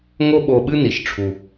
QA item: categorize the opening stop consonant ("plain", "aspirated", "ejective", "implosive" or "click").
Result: implosive